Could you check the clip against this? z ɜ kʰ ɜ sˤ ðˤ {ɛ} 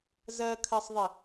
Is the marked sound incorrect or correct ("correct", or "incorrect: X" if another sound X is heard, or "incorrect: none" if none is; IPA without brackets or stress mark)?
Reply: incorrect: ɪ